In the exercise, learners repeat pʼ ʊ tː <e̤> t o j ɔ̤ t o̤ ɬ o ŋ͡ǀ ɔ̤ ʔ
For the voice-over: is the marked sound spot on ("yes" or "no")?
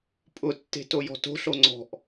yes